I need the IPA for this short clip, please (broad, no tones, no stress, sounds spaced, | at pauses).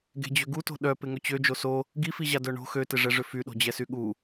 ɡ e̤ d͡ʑ ø ɡ u t o̤ ɗ œ p ɪ ŋ ʏ t͡ɕ ø d͡ʒ o s o | ɡ i f i ʑ a d œ ɳ o̤ x ø t ɪ ʐ ɛ ʐ ʏ f y ɗ o̤ d͡ʑ ɛ s y ɠ u